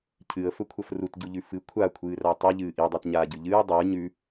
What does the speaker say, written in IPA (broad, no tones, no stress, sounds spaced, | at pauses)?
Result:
cʰ ɨ ə̯ f ɵ kʷʰ ɐ f r u t ɟ u ʎ ʉ f ɨ kʷʰ a kʷʰ ɨː r a tˤ i ʎ ɨː ʔ i dˤ e t ɲ aː ɟ ʉ ʎ ɨː dˤ ɨː ɲ ʉ